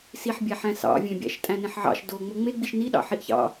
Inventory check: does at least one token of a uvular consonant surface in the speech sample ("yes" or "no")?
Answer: no